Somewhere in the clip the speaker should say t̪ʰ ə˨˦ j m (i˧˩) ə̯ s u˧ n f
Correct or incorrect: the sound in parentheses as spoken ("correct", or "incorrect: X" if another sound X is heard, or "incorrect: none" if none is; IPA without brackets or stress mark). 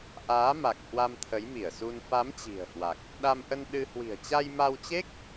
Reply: correct